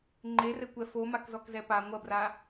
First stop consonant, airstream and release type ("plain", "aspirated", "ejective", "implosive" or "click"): click